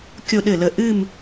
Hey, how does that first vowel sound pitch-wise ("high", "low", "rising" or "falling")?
falling